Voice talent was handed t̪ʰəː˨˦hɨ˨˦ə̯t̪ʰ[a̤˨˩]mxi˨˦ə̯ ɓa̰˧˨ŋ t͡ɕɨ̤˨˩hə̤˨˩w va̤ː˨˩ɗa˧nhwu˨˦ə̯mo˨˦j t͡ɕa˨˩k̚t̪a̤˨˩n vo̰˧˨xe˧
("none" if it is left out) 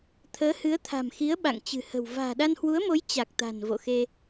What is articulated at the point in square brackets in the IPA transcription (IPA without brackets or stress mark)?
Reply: a̤˨˩